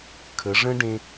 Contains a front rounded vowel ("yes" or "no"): no